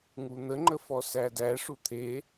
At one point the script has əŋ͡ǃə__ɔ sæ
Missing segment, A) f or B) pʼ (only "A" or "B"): A